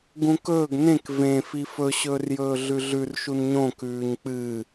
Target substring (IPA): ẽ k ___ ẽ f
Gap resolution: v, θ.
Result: v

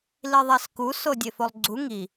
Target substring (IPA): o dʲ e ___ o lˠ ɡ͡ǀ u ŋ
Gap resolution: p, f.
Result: f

